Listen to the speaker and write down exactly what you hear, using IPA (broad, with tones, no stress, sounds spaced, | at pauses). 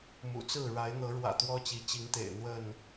m ṵ˨˩ t͡s ɹ̩˥˨ ɻ a˨˦ ɪ̯ n̪ ɤ˨˦ ɻ w ä̰˨˩ t̪ w ɔ˦ t͡ɕ i˨˦ t͡ɕ i˨˦ ŋ t̪ ḛ˨˩ ɪ̯ n̪ w ə˥˨ n